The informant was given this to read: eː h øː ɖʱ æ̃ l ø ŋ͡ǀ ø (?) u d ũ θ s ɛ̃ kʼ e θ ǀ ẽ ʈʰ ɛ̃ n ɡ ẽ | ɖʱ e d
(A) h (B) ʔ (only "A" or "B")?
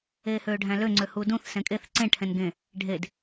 A